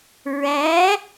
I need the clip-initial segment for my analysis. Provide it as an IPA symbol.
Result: ɹ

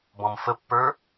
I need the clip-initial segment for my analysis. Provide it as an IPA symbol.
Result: b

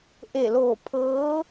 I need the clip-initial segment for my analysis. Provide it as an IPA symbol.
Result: ʔ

